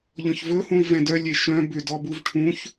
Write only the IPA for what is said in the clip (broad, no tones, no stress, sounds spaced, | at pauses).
ʎ ɔ̃ ç v ɵ h ũ i̯ v ɛ̃ d œ lʲ e ʃ œ̃ b ʏ d ɔ b u v ʈʰ ũ ç